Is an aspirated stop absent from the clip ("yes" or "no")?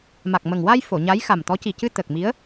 yes